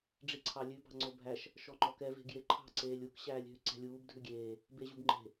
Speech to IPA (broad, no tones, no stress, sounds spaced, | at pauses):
ɖ͡ʐ i ǀʰ ɑ lʲ ʉ b ɑ̤ ŋ͡ǀ o bʱ æ ʃ | ʃ ɔ ŋ͡ǃ ɔ k ɛ v e̤ ɡ j e ǃʰ ɑ̤ ǀ eː lʲ u k ɕ æː lʲ ɦ ʉ ǀ ɛ̤ lʲ uː b dʱ ʉ ɡʲ eː | b e ʑ u b ŋ͡ǃ e̤